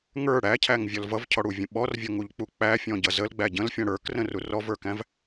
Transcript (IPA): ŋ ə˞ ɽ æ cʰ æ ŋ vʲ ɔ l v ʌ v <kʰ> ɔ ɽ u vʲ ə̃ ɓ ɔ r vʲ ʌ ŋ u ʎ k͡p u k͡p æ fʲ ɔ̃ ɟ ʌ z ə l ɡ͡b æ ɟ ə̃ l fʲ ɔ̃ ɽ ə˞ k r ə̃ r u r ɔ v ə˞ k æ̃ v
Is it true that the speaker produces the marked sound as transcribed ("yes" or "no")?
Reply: no